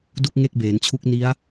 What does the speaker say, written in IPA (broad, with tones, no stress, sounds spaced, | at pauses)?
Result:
d u˥˩ k̚ ŋ e˥˩ k̚ b eː˩˦ n t͡ɕʰ u˦˥ k̚ n i˦˥ a̯